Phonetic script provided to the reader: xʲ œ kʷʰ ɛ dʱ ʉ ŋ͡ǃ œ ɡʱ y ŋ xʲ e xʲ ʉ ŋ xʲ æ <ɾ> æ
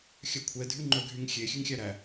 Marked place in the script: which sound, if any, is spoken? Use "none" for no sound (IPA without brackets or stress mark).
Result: ɾ